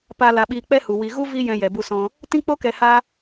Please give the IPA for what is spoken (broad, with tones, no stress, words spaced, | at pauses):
pa˧ la˧ɓiː˧k͡pɛ˦hu˨ wi˨ɣu˦ vi˦jɛ̃˧ jɛ˨bu˧sɔ̃˧ | tĩ˦k͡po˦kɛ˧ ha˦